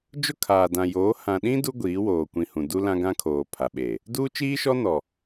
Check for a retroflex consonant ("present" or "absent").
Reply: absent